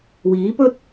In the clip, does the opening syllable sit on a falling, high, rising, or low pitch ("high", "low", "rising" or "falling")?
rising